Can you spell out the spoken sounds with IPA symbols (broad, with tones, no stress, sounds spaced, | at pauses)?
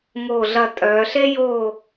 ŋ oː˦˨ ɮ ɐ˦˨ tʼ œː˨˦ ɬ e˥ j oː˦˨